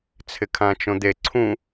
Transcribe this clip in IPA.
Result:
t͡sʰ ɪ kʰ ã t͡ʃ õ d̪ e ǀʰ ũ

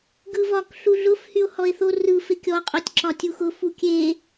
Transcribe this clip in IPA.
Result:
ɡ ɯ v ɒ k ɬ u ɮ ʊ f h y o̯ h ɔ e̯ θ o r ɯ f e kʲ ɔ qʼ o tʲ ǁ ɒ tʲ u x ʊ f u kʲ e

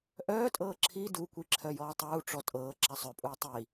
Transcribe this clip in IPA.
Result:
ʔ œː tʼ ɤː ǁʰ i d u kʷ i ǁʰ œ j ɔː tˤ uː ʈ͡ʂ ɔ tʼ ɤː ǁ a sˤ œ pʼ uː tˤ i

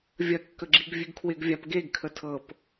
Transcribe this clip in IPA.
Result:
vʲ ɐ kː ə ɡ͡ǁ i ɡ vʲ ʉ ɡ kʰ w ɪ ɡ vʲ a p ɡ e ɡ kʰ ə tʰ ɤ p

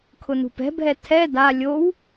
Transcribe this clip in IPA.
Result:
kʰ ʊ n ṳ p ɛ̤ bʱ ɛ tʰ ɛ d a lʲ o w

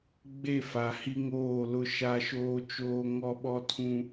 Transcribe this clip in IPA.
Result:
ɡ͡b e˦˨ f a˨ h i˦ ŋ oː˦˨ l ʊ˦ ʃ a˦ ʃ oː˦ t͡ʃ oː˦ ŋ ɔ˦ ɓ ɔ˦ tʰ ũ˦

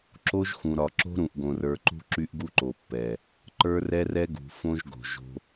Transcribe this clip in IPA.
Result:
ǁ o˦ ʒ x ũ˨ ɾ ɒ˨ ǁ o̤˦ ɾ ũ˨ ʔ ɡ õ˨ r ə˞˨ ǃ ṳ˦ ǁ y˦ ʔ ɡ u˦ ǃ o˨ pː ɛ˨ | ǃ ə˞˦ r ɛ˦ r ɛ˦ ɡ ṳ˨ f õ˦ ʒ ɡ o̤˨ ʒ o̤˦

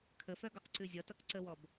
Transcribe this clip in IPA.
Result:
kʰ ə f œ ɡ ɔ q ǀ ʉ zʲ ʌ t ʌ k ǀ ə w ɔ b

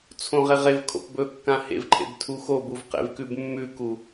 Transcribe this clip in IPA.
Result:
t͡sʰ õ ʁ e ʁ e v kʰ o̰ p b ɵ kː ã h ḛ v ǃʰ ḛ b tʰ u x o b u v q ḛ v k ʉ b mː ʉ k u

